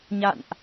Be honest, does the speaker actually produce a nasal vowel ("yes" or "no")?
no